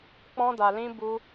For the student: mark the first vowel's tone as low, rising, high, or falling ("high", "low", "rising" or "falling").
high